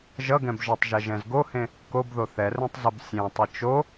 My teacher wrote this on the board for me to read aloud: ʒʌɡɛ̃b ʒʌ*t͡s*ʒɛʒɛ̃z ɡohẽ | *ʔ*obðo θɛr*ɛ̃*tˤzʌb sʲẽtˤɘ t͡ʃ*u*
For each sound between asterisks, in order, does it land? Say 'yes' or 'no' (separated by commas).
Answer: no, no, yes, no